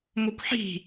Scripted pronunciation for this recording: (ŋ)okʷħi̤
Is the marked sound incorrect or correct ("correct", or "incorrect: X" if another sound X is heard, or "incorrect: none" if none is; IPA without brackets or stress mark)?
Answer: correct